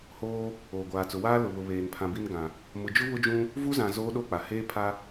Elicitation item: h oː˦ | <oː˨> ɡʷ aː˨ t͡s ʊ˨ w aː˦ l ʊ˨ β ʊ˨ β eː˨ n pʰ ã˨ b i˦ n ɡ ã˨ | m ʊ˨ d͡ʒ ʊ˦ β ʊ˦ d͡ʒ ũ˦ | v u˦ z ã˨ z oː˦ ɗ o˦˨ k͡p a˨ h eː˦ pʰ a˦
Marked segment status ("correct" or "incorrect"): correct